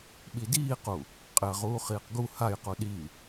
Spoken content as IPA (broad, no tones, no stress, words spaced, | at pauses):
ɓidiːqu | qʼɪɐ̯ʁuː χiːqɡu hajqu ɗi